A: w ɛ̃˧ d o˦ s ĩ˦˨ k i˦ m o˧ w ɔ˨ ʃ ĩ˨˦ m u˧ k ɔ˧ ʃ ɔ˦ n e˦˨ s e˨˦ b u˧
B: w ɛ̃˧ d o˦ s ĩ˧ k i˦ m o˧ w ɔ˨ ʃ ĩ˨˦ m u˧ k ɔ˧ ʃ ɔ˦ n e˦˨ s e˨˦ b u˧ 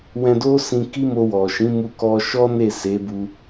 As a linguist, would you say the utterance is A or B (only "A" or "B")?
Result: B